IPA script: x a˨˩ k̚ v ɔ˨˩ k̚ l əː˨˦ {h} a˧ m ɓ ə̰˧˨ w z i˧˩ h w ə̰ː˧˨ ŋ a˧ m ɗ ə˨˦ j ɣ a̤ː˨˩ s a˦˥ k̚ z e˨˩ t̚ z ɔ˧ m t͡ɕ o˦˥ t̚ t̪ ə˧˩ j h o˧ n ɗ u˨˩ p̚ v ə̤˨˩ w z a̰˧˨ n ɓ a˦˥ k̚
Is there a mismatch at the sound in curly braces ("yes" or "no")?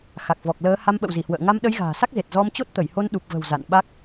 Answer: no